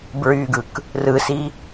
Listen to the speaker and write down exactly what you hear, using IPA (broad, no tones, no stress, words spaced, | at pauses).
bɹyɡɯk | rɯsi